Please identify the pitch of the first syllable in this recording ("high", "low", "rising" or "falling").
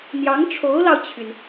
rising